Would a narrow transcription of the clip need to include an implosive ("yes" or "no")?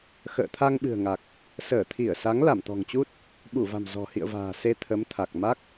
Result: yes